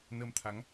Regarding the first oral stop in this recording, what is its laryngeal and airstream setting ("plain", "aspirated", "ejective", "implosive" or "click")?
aspirated